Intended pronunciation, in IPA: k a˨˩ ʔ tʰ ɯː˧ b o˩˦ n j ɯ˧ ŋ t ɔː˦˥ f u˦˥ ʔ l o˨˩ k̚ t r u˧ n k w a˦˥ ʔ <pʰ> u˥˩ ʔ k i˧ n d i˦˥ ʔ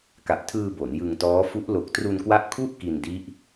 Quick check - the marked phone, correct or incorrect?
incorrect